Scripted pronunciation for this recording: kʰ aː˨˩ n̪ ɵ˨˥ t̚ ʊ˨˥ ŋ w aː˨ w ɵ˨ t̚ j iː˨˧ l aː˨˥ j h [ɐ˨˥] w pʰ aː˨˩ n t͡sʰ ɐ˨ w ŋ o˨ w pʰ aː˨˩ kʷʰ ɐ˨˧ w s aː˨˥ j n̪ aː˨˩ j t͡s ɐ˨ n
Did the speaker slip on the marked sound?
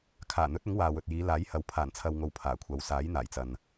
no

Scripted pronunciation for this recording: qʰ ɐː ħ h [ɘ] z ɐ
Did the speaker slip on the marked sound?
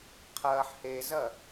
yes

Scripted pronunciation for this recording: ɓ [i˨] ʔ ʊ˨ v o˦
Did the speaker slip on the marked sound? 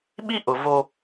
yes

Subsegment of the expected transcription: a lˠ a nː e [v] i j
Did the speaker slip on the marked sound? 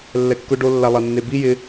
yes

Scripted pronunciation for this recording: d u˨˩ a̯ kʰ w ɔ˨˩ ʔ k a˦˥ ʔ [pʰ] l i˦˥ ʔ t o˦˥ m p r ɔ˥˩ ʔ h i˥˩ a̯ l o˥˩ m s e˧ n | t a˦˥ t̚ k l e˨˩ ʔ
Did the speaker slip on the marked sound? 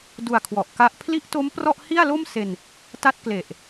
no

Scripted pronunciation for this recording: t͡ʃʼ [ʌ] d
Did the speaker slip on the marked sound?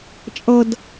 no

